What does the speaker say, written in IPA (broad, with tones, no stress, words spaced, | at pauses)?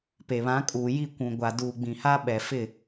pe˨βã˨˦kʼuː˨ ji˦˨kʷũ˨ɡʷa˨ duː˨ɡ͡bĩ˨ ha˦ ɓɛ˨fɪ˦˨